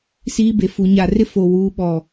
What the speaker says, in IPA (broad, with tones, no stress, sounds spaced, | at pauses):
s iː˦ b e˨ f u˨ ɲ a˨ r ɪ˦ f o˨ w uː˨˦ ɓ ɔ˨